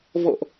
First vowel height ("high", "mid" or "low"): mid